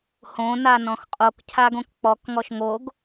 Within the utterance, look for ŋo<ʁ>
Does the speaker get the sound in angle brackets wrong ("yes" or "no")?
yes